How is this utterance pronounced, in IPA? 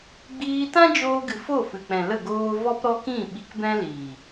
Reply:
ɡ͡biː˧tã˦d͡ʒoː˧ɡɨ˨ fo˦˨fɨ˨k͡pɛ̃˨lə˦˨ ɡoː˧ vɔ˦pɾɔ˦kĩ˦˨ ɓi˧kbɛ̃˦liː˨

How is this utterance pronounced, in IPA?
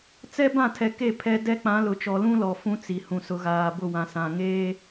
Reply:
t͡sɛ˦bã˦˨tʰɛ˨ke˦˨ pʰɛ˦ dɛ˦k͡pã˨˦lʊ˨t͡ʃɔ˨ lũ˦lɔ˨ fũ˦t͡si˨hũ˨ sʊ˨ɣaː˨ bʊ˦˨wã˨ sã˨ ŋeː˦

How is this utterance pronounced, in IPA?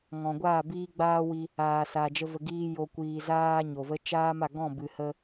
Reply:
ŋɔ̃˨ɡʷaː˦˨ biː˦ɡ͡baː˦wi˧ | aː˨sa˨d͡ʒə˧ və˨ɡiː˧ jo˨ kʷiː˨ zaː˦ɲo˨və˦ t͡ʃaː˦ma˦˨ɡɔ̃˦˨ bɨ˨hə˧

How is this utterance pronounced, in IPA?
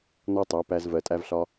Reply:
nɔ˦tˤæ˨˦pæ˧z vɜ˨tʼæ˧vɬɒ˧

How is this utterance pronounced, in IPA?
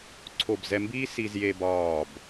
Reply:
ǀʰo˧˩bzɛ˧mbiː˥ si˧zje˧bɒː˧˩b

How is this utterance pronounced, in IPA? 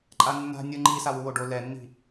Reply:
ǃʼanːa̤ nʲɯ ŋ͡ǃi sawuwoɖo lɛnːi̤

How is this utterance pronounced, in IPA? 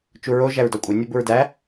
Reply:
t͡ʃuɹo ʒæɹdɒkʷʼe nʲobuɹdæ

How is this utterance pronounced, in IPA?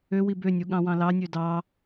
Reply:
øwi bønʲu ɠɑ̃wɑ̃lɑnʲø dɑ

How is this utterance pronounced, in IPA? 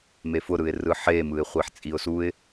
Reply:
mefʊɾɯɪ̯ rɯħe mɯɪ̯χʷiħt͡sʼiʊ̯suɪ̯

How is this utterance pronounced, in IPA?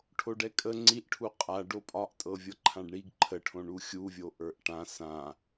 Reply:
ʈʰoɖɛkʼə ŋ͡ǀiʔʈʰu qʼa ɖopʼɒʔtʼɤ vʲɤǃʰãɖɳiɡ ǃʰəʈʰõ ɳuxʲuvʲo ʔə˞ʔʈã sã

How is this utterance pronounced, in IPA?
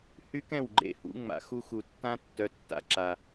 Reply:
hy˦kɛ̃˦˨wɡ͡ǃḛ˦ hṵ˧ ŋ͡ma̰˨xu˧xu˨tːã˦ tːœ˧tːa̰˧ǁa˨

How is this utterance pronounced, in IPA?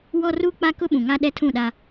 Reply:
wɔ˦ru˦k͡pa˦ kʊ˦ɓũ˨ŋa˦ ɗɛ˦tʰũ˦˨ɗa˦

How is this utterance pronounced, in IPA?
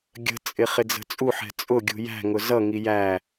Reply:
ɡʲə̤t͡sʼɪ χɪd͡zə̤t͡sʼuħɛ̤ t͡sʼʊɡʲṳ jæ̤ŋʊ zʌŋi jæ

